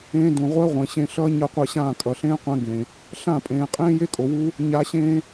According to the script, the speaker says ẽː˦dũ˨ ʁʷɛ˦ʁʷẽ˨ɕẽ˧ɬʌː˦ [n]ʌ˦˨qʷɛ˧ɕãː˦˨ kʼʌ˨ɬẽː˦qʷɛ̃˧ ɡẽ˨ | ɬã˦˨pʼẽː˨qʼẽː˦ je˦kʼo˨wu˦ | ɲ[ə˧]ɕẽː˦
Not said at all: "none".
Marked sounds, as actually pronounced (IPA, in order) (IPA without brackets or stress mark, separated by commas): ɲ, a˧